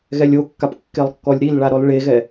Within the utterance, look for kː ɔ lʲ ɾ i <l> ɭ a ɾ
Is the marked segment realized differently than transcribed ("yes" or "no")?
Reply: no